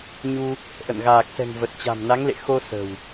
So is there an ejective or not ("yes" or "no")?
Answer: no